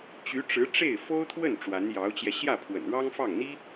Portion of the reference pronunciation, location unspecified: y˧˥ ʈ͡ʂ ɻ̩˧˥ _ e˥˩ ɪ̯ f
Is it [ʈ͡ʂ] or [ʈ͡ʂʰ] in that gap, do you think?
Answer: ʈ͡ʂ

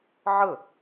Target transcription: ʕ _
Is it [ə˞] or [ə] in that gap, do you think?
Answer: ə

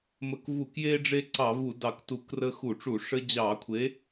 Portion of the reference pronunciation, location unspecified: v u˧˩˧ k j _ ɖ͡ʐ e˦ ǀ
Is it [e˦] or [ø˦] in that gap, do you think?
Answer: e˦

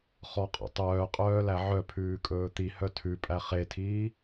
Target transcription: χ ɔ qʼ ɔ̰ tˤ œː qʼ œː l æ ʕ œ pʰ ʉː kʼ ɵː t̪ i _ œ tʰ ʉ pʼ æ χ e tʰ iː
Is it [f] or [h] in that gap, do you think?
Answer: h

